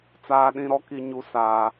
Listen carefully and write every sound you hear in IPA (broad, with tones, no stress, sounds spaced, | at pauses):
t͡s aː˦ ɗ ĩ˦ ɾ ɔ˦ k i˦ ɲ u˦ s aː˦